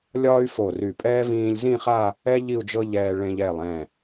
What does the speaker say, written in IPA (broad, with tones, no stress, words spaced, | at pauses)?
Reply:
lʲɒː˥y̯ fo˧˩ry˧˩pʼɛː˥ vĩː˧lʲzĩ˥˧χa˥˧ | ɛ˥ ʎi˥˧u̯d͡ʒɤ˥ʎɛː˧ ɭẽ˧ʎ ɛ˧˩lˠɛ̃˧˩